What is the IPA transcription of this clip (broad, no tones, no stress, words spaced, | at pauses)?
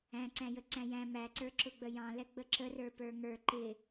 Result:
æ̃ǀæ̃jə ǀæ̃jæ̃ mæǀə˞ ǁʊɡ͡bəjɑ̃lɛ ɡ͡bəǁə rə˞pə˞ŋə˞ ǃɪ